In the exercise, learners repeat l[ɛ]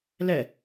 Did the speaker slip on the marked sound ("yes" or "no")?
no